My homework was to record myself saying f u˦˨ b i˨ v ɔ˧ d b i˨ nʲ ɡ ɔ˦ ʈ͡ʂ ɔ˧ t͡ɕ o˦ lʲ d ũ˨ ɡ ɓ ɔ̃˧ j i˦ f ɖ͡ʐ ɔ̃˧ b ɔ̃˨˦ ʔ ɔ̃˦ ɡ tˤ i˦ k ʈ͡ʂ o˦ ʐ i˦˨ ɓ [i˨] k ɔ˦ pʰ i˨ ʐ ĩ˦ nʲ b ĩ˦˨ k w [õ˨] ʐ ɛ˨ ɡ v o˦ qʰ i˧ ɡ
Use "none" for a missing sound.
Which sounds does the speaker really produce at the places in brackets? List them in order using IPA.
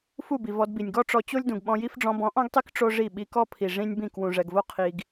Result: i˧, ũ˨

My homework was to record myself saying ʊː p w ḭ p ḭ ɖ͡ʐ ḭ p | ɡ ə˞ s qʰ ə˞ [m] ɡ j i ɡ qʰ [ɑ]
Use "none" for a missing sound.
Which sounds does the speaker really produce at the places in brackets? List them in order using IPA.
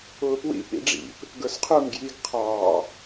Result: m, ɑ

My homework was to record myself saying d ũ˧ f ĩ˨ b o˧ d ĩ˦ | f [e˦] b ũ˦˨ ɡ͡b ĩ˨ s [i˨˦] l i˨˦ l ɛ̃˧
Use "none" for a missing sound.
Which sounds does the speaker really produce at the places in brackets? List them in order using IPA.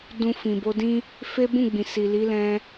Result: e˦, i˨

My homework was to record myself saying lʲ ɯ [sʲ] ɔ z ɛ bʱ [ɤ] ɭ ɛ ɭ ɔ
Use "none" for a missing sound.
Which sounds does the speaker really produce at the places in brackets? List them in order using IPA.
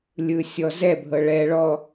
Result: sʲ, ɤ

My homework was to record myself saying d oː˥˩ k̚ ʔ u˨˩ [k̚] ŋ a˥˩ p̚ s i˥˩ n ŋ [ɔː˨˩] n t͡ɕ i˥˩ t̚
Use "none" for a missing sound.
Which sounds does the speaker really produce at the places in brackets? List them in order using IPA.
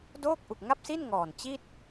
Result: k̚, ɔː˨˩

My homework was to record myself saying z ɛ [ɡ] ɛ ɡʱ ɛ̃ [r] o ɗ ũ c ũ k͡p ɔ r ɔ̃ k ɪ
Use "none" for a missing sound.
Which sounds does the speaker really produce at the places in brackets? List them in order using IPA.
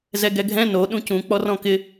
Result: ɡ, n

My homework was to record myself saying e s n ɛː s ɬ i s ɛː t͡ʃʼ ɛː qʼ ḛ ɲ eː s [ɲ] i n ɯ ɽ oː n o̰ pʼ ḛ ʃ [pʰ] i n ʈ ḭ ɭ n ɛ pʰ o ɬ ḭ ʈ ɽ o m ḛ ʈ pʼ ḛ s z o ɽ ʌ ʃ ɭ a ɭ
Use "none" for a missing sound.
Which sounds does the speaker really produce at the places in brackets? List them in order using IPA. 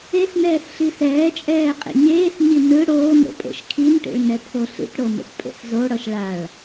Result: ɲ, kʰ

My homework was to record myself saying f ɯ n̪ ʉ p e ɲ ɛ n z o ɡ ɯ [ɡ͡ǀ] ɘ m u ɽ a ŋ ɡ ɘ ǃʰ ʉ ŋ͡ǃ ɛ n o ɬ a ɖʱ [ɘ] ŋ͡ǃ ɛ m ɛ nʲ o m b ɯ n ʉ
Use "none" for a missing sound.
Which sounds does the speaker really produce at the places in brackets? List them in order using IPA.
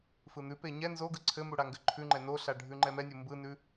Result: ǀʰ, ʉ

